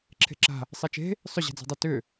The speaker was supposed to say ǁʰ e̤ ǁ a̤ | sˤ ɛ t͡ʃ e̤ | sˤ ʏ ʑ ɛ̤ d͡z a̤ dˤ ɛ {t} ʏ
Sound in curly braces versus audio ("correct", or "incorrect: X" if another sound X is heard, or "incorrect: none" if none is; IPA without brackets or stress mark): correct